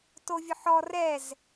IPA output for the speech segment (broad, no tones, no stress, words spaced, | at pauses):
tovʲʊħɔ rɛz